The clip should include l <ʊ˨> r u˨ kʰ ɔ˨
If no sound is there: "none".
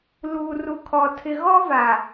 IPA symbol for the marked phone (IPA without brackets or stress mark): u˨